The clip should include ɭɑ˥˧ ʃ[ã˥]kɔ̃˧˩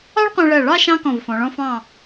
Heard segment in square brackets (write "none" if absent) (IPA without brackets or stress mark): ɑ̃˥